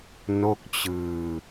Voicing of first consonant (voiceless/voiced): voiced